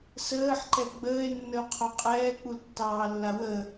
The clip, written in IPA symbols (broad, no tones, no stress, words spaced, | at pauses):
səːħǃɛ ɡ͡bəːe̯nːəo̯qʰo qʼɛːk͡pultːɑːlːa wə